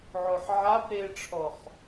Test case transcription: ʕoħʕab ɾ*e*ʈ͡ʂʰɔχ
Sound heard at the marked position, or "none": e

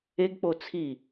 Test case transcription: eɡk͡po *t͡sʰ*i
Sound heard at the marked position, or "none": t͡sʰ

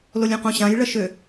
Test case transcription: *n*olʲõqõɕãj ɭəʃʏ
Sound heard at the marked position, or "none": l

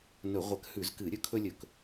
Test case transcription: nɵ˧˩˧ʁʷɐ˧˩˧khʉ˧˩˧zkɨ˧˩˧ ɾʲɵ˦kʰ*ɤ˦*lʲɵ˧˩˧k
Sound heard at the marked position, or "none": ɵ˦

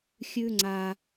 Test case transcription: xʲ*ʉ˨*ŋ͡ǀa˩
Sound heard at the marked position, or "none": ʉ˨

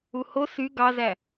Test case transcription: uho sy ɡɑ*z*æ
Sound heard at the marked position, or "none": z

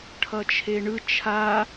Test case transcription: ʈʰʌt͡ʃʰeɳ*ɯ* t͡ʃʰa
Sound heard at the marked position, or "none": ɯ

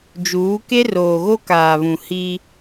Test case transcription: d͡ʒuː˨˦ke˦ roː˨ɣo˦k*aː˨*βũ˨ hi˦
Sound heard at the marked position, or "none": aː˨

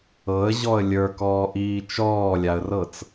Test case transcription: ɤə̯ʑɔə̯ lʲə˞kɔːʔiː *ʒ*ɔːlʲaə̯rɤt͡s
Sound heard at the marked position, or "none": t͡ʃ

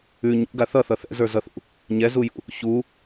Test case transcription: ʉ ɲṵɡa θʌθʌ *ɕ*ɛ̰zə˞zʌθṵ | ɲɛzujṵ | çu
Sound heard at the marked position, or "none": θ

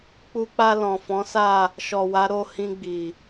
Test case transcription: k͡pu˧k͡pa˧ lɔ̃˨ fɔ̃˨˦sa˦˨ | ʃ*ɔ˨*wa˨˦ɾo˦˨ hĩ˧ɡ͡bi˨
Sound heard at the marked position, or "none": ɔ˨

